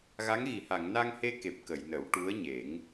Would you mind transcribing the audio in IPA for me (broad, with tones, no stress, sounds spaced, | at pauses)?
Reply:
ɣ a˧˥ ŋ ɣ i˨˩˨ h a˨˩˨ ŋ n a˧ ŋ h e˧ k e˨˩ p̚ k ə˨˩˨ j n ə˨˩˦ w ʈ u˧˥ ə̯ ɲ e˨˩˦ ŋ